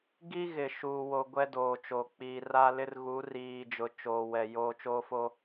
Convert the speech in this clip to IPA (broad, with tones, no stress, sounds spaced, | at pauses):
ɡ i˦ ɣ ɪ˨ ʃ uː˨ w o˨ ɡʷ ɛ˦ d oː˨ t͡ʃ oː˨ k͡p iː˨ r a˦ l ɪ˦ r ɣ u˨˦ r iː˨ d͡ʒ ʊ˨ t͡ʃ oː˨ w ɛ˨ j oː˨ t͡ʃ oː˦ f o˦